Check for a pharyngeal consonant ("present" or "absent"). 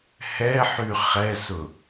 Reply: present